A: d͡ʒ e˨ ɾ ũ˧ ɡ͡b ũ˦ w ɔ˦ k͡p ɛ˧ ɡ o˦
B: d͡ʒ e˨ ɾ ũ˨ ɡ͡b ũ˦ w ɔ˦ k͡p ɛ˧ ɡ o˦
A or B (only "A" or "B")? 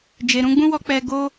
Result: A